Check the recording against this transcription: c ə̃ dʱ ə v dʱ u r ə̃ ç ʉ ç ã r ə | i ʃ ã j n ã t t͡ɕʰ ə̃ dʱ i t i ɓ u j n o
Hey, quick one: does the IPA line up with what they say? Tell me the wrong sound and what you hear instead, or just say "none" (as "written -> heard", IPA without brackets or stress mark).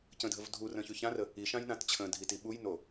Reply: none